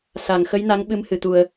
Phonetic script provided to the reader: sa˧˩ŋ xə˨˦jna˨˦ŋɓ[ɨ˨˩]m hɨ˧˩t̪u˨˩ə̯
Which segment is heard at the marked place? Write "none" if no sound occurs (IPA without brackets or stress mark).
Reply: ɨ˨˦